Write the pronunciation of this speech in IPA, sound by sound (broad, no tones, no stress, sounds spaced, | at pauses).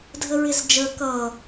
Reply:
dʱ ə ɹ ɪ z d͡ʒ əː k ʌː